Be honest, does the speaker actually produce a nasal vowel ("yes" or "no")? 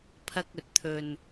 no